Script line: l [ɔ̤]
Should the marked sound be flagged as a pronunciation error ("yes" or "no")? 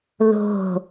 yes